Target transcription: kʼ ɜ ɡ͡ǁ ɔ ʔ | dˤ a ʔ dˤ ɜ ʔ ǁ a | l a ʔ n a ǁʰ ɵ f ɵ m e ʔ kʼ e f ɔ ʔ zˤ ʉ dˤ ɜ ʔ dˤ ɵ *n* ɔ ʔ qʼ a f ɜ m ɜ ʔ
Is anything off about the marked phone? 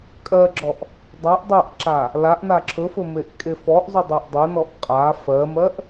no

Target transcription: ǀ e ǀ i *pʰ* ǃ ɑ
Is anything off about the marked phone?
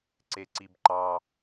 yes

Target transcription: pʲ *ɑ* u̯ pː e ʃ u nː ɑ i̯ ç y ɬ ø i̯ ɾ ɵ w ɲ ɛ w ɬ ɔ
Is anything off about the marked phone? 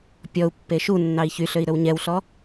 yes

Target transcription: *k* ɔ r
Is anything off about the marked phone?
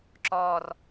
yes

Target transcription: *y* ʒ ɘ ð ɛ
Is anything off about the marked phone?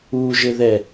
yes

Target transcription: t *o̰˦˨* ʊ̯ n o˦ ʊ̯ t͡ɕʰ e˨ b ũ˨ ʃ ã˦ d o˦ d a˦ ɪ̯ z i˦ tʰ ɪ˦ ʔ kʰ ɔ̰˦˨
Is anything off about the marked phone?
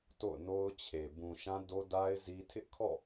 no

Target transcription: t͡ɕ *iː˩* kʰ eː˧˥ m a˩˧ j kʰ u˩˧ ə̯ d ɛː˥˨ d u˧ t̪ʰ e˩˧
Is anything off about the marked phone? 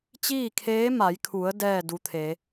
yes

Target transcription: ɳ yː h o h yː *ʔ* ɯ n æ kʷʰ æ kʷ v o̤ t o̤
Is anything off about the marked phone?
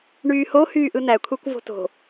no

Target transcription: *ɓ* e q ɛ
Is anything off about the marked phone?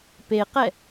yes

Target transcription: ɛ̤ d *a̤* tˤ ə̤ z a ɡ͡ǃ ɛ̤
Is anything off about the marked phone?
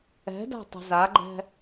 no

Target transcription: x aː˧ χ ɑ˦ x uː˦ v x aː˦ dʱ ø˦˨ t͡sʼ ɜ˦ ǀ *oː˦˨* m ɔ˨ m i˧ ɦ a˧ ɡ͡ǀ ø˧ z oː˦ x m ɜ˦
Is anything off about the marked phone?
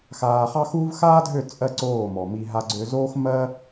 no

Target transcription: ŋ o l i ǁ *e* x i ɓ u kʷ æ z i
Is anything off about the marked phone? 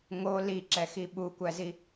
yes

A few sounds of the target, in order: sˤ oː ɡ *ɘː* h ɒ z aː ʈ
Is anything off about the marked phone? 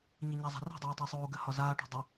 yes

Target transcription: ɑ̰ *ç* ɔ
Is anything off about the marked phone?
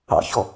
no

